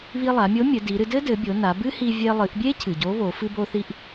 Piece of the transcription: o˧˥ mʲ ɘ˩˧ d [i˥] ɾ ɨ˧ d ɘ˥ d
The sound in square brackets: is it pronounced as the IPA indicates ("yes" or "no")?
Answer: no